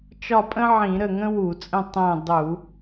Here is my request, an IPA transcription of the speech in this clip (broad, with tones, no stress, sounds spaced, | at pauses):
t͡ʃ ɒ˦˨ pʼ ə̃˥ ʕ ĩ˧˩˧ ɾ ə˦˨ ŋ ə̃˥ w u˧˩˧ t͡sʼ ə̃˦˨ tˤ ɛ̃˦˨ dˤ u˧˩˧